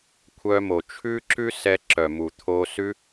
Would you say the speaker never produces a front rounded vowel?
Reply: no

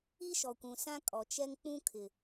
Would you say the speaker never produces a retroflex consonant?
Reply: yes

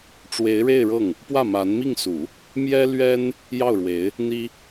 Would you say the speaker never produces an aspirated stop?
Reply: yes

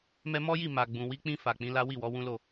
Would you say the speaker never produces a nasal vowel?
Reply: no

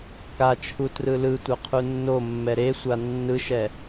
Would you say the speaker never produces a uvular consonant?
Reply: no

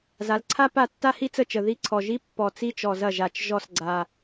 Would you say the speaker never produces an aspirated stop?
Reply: no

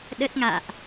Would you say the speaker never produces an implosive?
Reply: no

